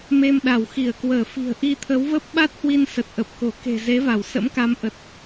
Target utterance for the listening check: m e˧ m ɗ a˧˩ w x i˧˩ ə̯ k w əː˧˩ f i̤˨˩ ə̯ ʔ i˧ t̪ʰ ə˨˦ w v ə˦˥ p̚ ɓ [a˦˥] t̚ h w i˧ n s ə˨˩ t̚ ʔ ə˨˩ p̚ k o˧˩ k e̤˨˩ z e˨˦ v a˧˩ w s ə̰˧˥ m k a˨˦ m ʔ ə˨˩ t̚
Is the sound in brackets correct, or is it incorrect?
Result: correct